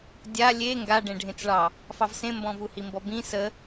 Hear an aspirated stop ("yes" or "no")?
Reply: no